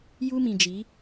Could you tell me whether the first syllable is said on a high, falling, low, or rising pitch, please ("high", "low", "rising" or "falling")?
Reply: high